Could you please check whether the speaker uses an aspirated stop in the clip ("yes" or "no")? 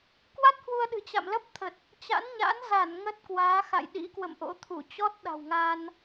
yes